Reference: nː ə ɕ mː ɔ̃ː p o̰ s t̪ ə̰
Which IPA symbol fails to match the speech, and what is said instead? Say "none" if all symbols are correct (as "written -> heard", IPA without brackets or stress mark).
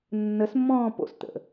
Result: ɕ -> s